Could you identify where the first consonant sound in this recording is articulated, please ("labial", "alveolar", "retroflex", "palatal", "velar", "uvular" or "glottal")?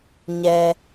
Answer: palatal